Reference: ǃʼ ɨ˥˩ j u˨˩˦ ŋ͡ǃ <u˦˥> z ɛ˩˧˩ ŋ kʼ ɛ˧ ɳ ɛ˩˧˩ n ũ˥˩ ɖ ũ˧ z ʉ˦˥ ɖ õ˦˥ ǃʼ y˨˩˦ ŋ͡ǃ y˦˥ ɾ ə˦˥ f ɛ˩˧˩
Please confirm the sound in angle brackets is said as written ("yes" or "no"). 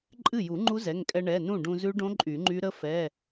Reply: yes